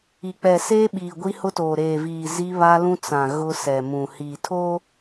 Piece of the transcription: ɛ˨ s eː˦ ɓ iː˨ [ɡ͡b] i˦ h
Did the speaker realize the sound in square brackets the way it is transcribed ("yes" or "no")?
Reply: no